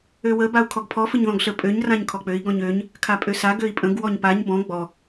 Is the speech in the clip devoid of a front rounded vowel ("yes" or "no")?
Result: no